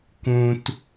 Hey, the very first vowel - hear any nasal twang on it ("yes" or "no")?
yes